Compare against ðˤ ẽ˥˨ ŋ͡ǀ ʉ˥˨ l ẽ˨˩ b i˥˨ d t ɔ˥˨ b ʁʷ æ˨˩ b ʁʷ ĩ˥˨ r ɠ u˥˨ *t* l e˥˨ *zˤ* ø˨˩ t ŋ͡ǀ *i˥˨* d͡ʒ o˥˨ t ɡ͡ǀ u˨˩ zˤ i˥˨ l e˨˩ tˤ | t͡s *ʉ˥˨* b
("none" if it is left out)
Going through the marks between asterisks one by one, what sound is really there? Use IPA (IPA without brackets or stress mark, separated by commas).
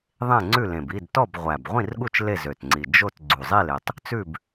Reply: t͡ʃ, z, i˨˩, ʉ˥˨